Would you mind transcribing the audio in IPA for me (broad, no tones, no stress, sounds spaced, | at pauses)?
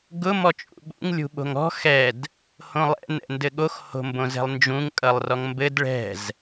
ɡ ʊ m ɔ t͡ʃʼ ṵ ɓ ṵ ŋ lʲ ṳ ɓ o̤ ŋ ɔ̤ x ɛ d | h õ lˠ ɛ̰ n ɛ̰ n d ɘ ɠ o x h o̤ m b õ z ɛ̤ lˠ n d͡ʒ ũ ŋ kʼ ʌ lˠ r ɔ ŋ m b ɘ d ɭ ɛ̤ z